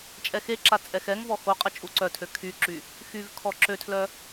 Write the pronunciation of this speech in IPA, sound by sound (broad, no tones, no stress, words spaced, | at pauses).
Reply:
t͡ʃʼɛxeǁa t͡sʼɛxɛŋvɔ xoqʼə t͡ʃʼuǀœtʰø kʰyǁy | xyv kʰɔǁøtʰlœ